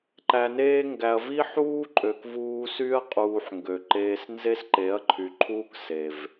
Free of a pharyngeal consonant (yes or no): no